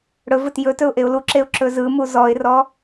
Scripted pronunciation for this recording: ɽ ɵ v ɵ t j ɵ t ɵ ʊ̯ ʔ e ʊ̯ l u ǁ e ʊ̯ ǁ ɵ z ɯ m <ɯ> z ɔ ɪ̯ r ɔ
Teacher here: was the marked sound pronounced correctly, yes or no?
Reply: no